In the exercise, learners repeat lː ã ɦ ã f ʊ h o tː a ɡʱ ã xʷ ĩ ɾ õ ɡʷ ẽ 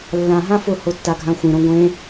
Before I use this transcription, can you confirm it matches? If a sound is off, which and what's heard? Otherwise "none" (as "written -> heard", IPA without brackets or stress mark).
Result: none